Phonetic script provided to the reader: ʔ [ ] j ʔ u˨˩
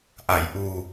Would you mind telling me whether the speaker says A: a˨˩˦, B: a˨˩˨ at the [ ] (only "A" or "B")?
B